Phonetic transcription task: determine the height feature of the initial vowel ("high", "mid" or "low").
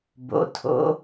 mid